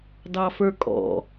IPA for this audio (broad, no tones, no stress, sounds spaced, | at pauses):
d ɑ f ə˞ kʼ ɔ̰